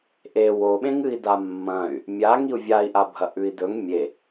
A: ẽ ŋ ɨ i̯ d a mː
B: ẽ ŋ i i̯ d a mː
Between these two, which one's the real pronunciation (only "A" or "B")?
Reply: A